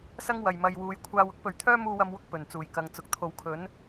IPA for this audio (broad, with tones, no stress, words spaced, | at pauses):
sɐ˥ŋ wɐ˨j mɐ˧jwuː˧j kʷʰaː˧wʊ˥k̚pɵ˨ɥt̪ʰœː˥ muː˥wɐ˥mwʊ˥k̚ pɵ˨˩nt͡suː˨˩jkɐ˨˧ŋt͡sʊ˨˥k̚ t̪ʰo˨˧wkʰɵ˨˥n